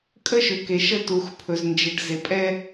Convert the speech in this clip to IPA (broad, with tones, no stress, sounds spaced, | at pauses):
kʼ ə˦ ʃ ʏ˨ k e˨ ʃ ə˦ t u˨ x pʰ ɵ˨ z n d͡ʒ e˨ ɖ z e˨ pʼ ɛ˦